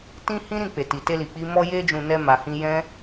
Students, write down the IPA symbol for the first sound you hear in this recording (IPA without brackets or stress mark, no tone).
t